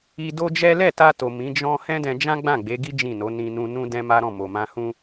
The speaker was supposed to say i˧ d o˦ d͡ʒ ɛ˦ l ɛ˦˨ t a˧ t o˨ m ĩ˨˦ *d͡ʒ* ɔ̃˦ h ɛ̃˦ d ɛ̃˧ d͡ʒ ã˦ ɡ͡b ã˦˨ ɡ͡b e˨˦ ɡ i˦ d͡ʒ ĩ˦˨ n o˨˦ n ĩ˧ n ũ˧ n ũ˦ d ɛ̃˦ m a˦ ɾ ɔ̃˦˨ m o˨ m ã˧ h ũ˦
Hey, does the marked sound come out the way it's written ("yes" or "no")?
yes